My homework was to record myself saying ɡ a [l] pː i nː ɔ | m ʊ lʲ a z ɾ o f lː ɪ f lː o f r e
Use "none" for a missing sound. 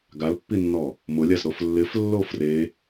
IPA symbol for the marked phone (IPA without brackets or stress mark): l